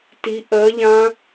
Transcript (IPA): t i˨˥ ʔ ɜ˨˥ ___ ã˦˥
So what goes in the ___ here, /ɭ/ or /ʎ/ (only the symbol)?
ʎ